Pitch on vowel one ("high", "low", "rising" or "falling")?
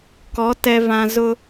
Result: rising